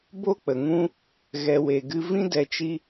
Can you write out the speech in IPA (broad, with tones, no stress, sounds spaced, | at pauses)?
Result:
b o˦ k͡p ə˨ ŋ ũ˦ | ɣ ɛ˨ w e˨ ɡ ɨ˧ v ĩ˦ d ɛ˧ t͡ʃ i˦